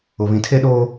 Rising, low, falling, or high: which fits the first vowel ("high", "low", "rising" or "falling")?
low